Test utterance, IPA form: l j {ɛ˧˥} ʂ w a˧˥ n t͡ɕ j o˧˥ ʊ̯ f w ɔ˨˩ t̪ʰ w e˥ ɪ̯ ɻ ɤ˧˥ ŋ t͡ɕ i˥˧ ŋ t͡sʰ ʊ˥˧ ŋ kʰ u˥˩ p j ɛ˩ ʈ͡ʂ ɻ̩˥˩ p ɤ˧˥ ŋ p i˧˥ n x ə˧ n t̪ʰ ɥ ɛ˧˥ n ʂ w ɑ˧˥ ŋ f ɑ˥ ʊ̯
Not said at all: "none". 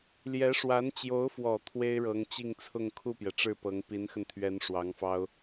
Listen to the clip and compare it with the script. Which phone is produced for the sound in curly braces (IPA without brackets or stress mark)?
ɛ˧˥